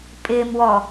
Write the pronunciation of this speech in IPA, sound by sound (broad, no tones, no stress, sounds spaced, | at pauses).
pʼ ɪː m w ɔ